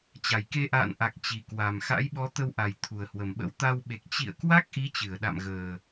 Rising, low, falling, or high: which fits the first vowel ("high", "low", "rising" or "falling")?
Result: low